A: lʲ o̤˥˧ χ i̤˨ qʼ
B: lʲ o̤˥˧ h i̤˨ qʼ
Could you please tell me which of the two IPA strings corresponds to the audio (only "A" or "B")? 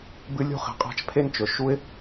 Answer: A